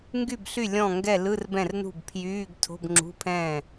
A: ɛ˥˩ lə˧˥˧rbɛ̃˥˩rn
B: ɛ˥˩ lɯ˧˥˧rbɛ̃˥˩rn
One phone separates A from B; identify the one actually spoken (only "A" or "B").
B